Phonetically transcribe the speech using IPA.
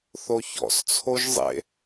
θ o ç ɔ̰ s t͡sʰ o ʒ zˤ ḛ

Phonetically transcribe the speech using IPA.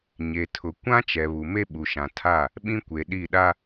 ɲ e˨ tʰ ʊ˨ kʷ ã˦ t͡ʃ ɛ˨ β u˨ m e˦ ɓ u˨ ʃ ã˨ tʰ a˦˨ | ɓ ĩ˦ kʷ e˨ ɗ i˦˨ ɗ a˦

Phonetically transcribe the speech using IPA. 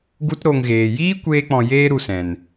ɡ u˦ t ɾ o˧ ŋ ɣ eː˨ j iː˦ kʷ eː˦ k͡p ɔ̃˧ j eː˦ ɾ u˧ s ɛ̃˨ n

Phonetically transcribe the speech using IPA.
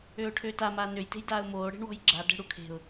ø ʊ̯ ʈʰ ø t a m aː n ø j t e̤ j d aː ʊ̯ m oː ɽ e̤ ɳ w ɔ̤ j ɡ͡ǁ a d ɛ̤ ɽ u kʰ e̤ ʊ̯

